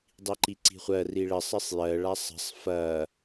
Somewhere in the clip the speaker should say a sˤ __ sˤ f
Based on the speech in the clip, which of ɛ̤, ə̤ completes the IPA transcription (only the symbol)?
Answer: ə̤